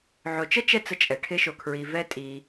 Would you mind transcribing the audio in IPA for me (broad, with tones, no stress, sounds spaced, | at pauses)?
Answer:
ʕ o˨ t͡ʃ ə˥ t͡ʃ ɛ˦ t͡s ə˦ t͡ʃʼ ɛ˩ ʈʰ ɪ˦ ʃ o˨ kʰ ɹ i˨ v ɛ˦ tʼ i˨